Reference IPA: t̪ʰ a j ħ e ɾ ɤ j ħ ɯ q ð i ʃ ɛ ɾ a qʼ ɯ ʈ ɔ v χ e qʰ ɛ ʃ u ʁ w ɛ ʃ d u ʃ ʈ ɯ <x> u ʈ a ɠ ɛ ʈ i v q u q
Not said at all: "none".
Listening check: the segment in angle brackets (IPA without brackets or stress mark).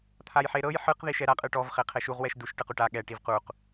q